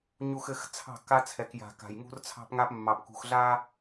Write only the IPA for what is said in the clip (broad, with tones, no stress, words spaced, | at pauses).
ɲu˨xɘ˨x t͡sʰɑ̤˦˨kːa˦t͡sʰɛ˨k ja̤˨ka̤˨j ŋṳ˦rt͡sʰɑ̤˦pŋa˦p mːɑ˨pkṳ˨xɮa˦